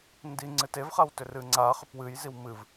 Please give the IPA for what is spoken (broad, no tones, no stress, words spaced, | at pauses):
ndi ŋ͡ǀɨtevχaw tʏrɨŋ͡ǀa χʏpwɨj ziwmɨv